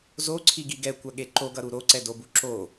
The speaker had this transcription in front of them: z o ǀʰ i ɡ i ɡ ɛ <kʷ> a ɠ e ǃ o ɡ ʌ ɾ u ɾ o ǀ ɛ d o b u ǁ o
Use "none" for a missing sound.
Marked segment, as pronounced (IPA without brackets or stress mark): kʷ